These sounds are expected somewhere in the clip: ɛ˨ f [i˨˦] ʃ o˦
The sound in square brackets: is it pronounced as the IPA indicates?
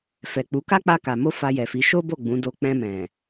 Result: yes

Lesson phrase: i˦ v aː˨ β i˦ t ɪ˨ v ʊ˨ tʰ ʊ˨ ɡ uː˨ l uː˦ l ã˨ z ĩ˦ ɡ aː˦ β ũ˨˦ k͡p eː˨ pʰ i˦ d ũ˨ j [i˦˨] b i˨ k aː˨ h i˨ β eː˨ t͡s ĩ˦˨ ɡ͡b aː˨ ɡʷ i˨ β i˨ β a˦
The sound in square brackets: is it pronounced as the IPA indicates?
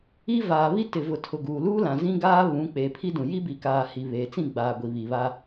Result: no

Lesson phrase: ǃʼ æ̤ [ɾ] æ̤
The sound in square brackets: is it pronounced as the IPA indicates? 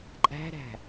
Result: yes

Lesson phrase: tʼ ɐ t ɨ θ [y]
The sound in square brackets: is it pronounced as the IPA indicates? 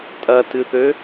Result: no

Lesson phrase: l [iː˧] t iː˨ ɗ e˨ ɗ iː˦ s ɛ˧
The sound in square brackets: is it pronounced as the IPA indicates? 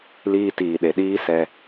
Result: yes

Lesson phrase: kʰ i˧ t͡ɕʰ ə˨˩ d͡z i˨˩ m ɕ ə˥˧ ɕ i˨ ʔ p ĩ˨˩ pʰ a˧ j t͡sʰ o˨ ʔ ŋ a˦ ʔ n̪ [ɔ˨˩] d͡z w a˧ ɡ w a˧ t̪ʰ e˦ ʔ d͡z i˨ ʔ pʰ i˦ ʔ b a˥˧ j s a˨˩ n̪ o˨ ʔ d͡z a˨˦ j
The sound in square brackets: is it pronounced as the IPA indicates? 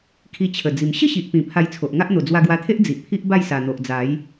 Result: no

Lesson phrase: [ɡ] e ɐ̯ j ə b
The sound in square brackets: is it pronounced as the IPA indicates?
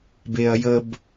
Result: no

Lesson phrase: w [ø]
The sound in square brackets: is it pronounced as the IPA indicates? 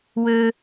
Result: yes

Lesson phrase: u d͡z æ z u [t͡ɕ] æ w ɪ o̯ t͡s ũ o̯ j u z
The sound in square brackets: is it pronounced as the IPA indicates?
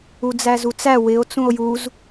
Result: no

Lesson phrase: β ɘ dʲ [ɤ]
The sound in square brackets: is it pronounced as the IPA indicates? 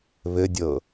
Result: yes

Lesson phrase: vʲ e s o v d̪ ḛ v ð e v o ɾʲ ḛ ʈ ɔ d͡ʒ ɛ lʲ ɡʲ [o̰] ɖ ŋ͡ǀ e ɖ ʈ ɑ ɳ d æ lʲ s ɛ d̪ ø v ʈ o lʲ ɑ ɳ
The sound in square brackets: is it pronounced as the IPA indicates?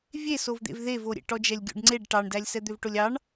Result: yes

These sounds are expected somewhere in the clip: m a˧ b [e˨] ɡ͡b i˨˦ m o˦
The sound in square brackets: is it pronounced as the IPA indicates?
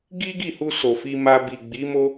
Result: no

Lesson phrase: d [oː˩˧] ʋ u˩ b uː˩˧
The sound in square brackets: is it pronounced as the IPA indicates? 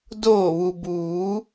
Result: no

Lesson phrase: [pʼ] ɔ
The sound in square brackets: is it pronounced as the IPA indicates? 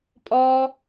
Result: yes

